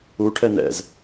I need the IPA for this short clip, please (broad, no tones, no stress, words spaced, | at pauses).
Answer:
uʈʰɛ nɛ̰z